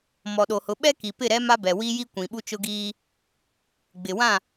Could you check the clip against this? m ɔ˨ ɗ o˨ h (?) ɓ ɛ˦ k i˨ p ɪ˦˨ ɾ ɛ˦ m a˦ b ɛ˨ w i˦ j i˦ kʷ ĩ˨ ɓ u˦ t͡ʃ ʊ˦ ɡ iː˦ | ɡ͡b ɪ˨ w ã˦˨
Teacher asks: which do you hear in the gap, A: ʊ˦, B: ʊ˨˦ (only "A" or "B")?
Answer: B